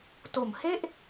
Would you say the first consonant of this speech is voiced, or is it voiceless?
voiceless